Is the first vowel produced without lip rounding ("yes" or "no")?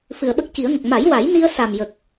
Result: yes